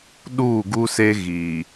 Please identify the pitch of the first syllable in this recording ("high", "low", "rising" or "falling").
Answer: falling